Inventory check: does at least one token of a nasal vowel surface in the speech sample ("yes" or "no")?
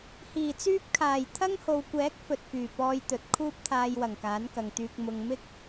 no